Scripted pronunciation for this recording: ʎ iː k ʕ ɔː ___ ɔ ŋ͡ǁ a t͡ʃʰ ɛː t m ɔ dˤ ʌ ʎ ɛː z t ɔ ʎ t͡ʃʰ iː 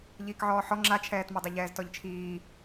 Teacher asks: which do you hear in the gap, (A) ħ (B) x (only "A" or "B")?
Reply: A